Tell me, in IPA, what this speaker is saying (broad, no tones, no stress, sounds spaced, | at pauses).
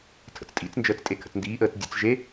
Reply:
tʰ ə̰ t͡s tʼ ḭ t͡s n d͡ʒ əː t͡s tʼ e kʰ ə̰ t͡s n d iː ʔ əː t͡s dʲ ə̰ t͡s ʒ e